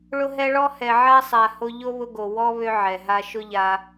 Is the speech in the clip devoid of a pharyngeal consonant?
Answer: no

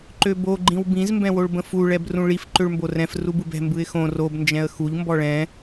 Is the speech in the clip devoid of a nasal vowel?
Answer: no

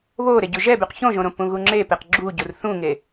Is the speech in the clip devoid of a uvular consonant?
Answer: no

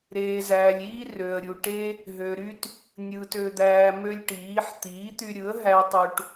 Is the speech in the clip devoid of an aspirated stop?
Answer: yes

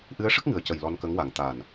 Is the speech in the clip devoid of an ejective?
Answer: yes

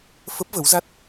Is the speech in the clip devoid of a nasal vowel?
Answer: yes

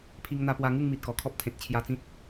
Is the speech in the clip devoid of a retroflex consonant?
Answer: yes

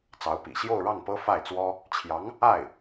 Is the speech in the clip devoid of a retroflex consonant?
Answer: no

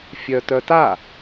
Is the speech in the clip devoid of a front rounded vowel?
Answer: no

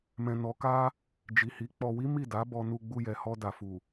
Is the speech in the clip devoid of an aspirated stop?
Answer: yes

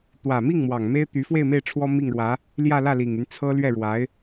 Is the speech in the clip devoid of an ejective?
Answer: yes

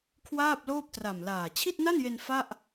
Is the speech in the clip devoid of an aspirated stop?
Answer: no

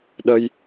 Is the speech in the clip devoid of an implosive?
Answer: no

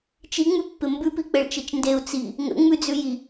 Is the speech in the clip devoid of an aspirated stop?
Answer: yes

